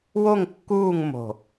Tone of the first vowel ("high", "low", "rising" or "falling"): falling